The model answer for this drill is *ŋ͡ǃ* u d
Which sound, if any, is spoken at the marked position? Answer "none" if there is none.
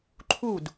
ǃʰ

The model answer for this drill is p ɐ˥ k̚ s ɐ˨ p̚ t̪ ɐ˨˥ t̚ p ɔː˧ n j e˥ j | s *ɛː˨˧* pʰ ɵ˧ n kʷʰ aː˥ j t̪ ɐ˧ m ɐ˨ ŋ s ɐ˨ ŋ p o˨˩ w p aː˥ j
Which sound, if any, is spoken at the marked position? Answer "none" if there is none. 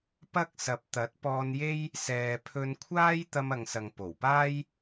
ɛː˨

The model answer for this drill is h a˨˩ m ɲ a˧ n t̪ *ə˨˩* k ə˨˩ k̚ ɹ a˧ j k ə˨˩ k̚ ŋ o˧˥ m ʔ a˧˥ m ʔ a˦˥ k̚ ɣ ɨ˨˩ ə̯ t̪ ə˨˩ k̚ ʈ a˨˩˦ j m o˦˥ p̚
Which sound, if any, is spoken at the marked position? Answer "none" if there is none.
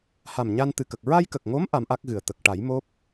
ɨ˨˩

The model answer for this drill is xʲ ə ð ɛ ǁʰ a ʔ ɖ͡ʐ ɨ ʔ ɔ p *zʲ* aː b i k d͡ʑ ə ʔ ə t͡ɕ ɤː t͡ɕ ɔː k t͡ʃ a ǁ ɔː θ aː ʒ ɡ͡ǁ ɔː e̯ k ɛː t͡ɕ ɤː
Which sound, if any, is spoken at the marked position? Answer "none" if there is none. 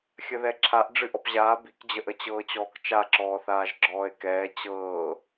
ʑ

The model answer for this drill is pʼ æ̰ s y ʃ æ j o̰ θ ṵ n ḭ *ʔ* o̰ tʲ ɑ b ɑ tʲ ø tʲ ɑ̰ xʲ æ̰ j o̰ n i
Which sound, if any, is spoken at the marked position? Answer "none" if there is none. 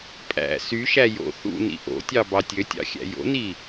ʔ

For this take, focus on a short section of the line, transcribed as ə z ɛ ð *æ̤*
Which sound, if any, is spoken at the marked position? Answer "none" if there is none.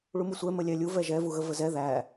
æ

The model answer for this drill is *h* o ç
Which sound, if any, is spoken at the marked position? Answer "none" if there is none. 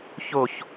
ç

